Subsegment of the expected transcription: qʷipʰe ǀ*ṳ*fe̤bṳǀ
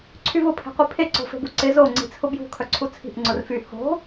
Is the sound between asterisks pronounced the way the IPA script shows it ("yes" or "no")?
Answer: no